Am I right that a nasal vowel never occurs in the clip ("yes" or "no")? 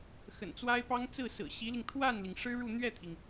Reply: yes